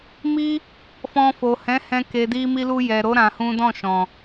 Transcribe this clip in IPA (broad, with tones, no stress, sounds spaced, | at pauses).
m i˦ | f ɔ̃˧ f o˨ h ɛ̃˨˦ h ɛ̃˧ k e˨ d i˧ m i˧ l u˧ j ɛ˨ ɾ o˨˦ ɾ ã˧ h ũ˦ d ɔ̃˦˨ ʃ ɔ̃˨